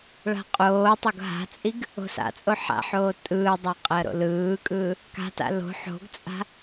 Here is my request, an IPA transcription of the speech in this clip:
ɭa̤qʼoːtˤoɡ ɦa̤t͡sʼiɡ | o̤sa̰t͡sʼo ħa̰ħoː tʼɯːdˤa qʼɜɾo̰lɯːkʼɯː | ka̤ta̰ lo̤ ħo̤ɡt͡sʼa̤

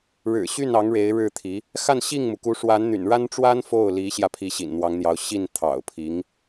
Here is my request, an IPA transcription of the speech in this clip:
ɻɻ̩˨˩ɕy˥˩nɑ˧˥ŋ ɻe˧˥ɪ̯ɻɻ̩˥˩t̪ʰi˧˥ | xa˥˧nɕi˥˩ŋmu˩ku˧˥ ʂwa˧˥nn̪y̰˨˩nɻa˥nʈ͡ʂwa˥n fo˥˩ʊ̯li˧˥ɕjä˧ pʰi˧˥ɕḭ˨˩nn̪wɑ˧˥ŋn̪jɑ˧˥ʊ̯ ɕi˥˩n t̪ʰɑ̰˨˩ʊ̯pʰi˧˥ŋ

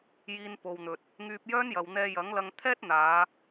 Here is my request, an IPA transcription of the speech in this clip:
jiː˧npo˨wn̪ɵ˨t̚ | ŋyː˧p̚jœː˥njɐ˨wn̪ɛː˧ jɐ˨˥ŋlɐ˧ŋ t̪ʰɛː˥t̚n̪aː˨˧

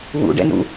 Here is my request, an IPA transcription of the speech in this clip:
wṵɖɛ̰nṵ

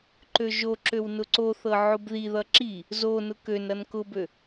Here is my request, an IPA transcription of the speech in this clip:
ǃøʒoǁøw nʊǀoθɤ ʕʊbðiðʌ ǁi | zonʊ kønɾʌn kʊbø

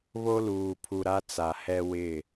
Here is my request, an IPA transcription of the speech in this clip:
βo˦luː˨pʰu˨ ɾa˦t͡sa˨hɛ˦ wɪ˦˨

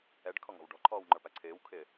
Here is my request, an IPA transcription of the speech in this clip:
ɛɖkʰɔŋɔ̤w ɖɔ̤ǃʰɔːwŋ͡ǃə˞pæ ǀʰɪːwkʰɪː

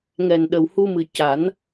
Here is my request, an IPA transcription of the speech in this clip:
ŋɛ˨˩nɗə˨˩w hu˧mɨ˨˩ ca˨˩˦n

